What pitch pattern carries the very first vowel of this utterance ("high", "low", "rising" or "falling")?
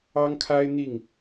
high